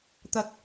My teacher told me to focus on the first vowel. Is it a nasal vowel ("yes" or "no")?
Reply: no